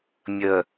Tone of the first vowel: low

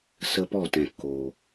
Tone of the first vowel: high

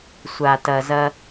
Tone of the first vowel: low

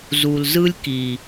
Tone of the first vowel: low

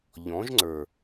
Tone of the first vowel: rising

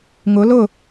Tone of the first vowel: rising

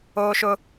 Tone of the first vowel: high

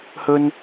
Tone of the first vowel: high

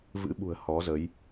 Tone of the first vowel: rising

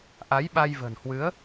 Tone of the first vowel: rising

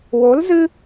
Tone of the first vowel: rising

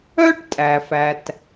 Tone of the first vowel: high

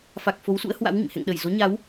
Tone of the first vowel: low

